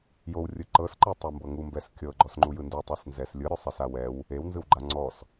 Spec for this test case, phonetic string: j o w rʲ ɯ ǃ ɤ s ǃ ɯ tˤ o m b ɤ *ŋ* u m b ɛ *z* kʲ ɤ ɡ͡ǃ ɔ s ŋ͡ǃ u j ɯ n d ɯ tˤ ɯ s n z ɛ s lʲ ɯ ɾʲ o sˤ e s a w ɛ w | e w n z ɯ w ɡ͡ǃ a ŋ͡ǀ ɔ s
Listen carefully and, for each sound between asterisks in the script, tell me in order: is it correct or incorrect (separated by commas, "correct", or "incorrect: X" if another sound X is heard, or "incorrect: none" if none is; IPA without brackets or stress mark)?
correct, incorrect: s